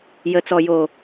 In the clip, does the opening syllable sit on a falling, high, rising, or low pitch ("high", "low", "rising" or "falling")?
low